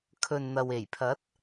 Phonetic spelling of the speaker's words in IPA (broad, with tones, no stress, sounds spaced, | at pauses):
kʰ ɵ˨ n n̪ ɐ˨ w e˨˩ j pʰ ɐ˨˥ t̚